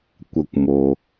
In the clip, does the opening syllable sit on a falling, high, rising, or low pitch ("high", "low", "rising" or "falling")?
low